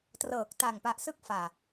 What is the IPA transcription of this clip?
t r ɤː˨˩ k̚ t a˨˩ ŋ p a˨˩ ʔ s ɯ˦˥ k̚ f aː˨˩

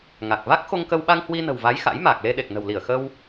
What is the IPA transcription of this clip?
ŋ a˨˩ k̚ v a˦˥ k̚ x o˧ ŋ k ə˧ w ɓ a˧ ŋ h w i˧ n ə̤˨˩ w v a˨˦ j x a̰˧˥ j m aː˨˩ k̚ l e˧ ɗ e˨˩ k̚ n ə̤˨˩ w l i˧˩ ə̯ x ə˧ w

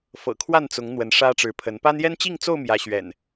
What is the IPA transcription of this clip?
f ɤ̰˨˩ kʰ w a˥˨ n t͡s ʊ˨˦ ŋ n̪ w ə˨˦ n ʂ ä˦ ʈ͡ʂ ɻ̩˨˦ pʰ ə˨˦ n p a˦ n j ɛ˦ n t͡ɕ i˥˨ ŋ t͡s o˥˨ ʊ̯ m j ä˨˦ ɕ ɥ ɛ̰˨˩ n

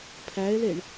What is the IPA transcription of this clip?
pʰ æ e̯ l e ɳ

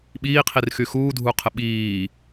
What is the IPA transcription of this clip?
ɓ iː qʰ i r x y x uː dʱ u qʰ ə ɓ iː

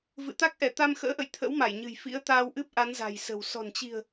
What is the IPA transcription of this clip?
v ɨ̰˧˨ t̪ a˦˥ k̚ ʔ ɛ˧˩ t̪ a˧ m x ə̰ː˧˥ ʔ ə̰˧˨ j t̪ʰ ə̰˧˥ w m a˧˩ j ɲ ɨ̤˨˩ j f ḭ˧˥ ə̯ t̪ aː˧ w ʔ ɨ˦˥ p̚ ʔ a˨˦ n z a̤˨˩ j s ə̤˨˩ w s ɔ̤˨˩ n t͡ɕ i̤˨˩ ə̯

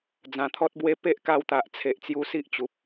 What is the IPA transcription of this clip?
d͡z ã˨˩ t̪ʰ ɔ˦ t̚ b w e˦ p e˦ ʔ k a˧ w t̪ a˨ ʔ t͡sʰ e˨ ʔ t͡s j u˧ s i˦ ʔ t͡ɕ u˨ p̚

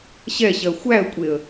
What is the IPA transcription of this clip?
ɕ ɛ ɕ ɜ xʷ æ ə̯ kʷʼ e ə̯

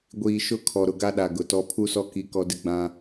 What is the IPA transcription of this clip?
ɡʷ iː˨ ʃ ʊ˦ kʰ ɔ˨ ɾ ʊ˨ ɡ a˦ ɗ a˨ ɡ ʊ˨ t ɔ˦ pʰ u˦ s ɔ˦ k i˦ k ɔ˦ d ɪ˦ ɡ͡b ã˦

